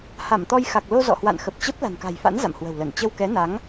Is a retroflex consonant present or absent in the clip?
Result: absent